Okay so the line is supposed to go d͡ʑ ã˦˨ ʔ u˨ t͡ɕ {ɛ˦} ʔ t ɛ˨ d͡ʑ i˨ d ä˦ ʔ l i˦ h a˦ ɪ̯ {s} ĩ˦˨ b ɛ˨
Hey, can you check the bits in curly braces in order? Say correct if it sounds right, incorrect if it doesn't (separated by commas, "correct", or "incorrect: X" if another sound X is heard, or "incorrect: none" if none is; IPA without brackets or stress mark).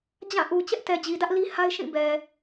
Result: correct, incorrect: ʃ